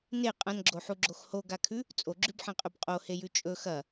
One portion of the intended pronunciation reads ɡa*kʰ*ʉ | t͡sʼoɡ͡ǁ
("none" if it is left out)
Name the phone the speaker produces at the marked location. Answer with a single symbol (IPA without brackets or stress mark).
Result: kʰ